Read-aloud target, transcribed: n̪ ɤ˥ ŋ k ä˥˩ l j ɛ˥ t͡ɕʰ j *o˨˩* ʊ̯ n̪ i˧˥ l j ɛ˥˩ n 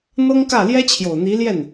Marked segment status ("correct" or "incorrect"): correct